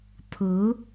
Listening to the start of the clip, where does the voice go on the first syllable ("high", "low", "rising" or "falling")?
rising